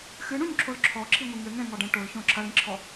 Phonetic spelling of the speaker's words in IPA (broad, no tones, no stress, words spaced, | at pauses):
xɨɳũɲǁʰol ǁʰɔǁʰiŋʷi ŋɘŋɛ̃ŋɔɖɛ̃ ʈolçõ ǁʰɐlĩǁʰɔ